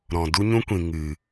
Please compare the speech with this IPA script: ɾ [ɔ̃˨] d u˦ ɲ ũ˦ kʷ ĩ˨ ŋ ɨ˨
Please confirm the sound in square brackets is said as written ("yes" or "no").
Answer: yes